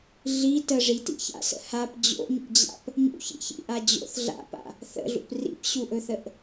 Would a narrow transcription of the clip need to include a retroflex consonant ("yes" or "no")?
yes